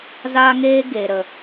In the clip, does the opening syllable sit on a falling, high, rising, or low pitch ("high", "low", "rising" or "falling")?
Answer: high